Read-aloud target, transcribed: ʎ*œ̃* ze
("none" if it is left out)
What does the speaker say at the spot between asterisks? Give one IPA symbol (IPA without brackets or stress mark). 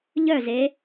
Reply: œ